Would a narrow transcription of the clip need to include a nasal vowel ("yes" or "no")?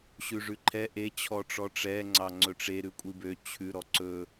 no